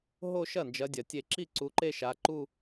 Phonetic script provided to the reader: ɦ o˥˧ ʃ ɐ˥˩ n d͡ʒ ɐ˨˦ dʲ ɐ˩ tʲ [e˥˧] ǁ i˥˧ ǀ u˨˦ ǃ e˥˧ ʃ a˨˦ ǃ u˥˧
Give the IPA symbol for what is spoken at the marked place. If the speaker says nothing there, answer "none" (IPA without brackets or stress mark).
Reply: e˥˩